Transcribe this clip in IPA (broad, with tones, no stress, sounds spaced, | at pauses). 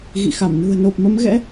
ɣ ḭ˧˨ x a˧˩ m n ṳ˨˩ ə̯ n o˨˩ p̚ m ə˨˦ m ɣ ɛ̰˧˥